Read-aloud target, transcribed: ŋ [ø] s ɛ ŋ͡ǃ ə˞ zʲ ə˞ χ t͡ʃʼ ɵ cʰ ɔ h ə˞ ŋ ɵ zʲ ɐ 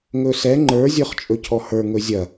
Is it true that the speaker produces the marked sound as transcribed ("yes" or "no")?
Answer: no